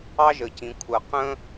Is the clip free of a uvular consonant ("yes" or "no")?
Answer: no